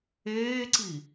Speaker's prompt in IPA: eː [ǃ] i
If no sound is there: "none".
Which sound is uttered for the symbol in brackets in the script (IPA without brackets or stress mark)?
ǀ